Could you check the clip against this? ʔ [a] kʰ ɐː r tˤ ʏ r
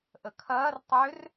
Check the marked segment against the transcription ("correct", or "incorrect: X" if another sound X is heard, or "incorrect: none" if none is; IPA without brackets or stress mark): incorrect: ə